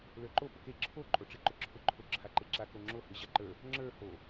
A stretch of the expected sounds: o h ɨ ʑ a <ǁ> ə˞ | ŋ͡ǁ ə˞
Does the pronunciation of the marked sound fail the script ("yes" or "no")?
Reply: yes